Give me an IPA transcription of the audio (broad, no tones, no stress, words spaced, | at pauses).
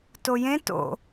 tojẽ to̰